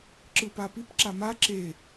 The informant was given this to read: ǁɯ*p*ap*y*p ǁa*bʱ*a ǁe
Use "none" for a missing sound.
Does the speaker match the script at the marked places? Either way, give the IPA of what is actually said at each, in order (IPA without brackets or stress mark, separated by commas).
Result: p, i, m